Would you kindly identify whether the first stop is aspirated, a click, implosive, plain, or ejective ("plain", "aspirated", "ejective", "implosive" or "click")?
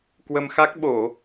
plain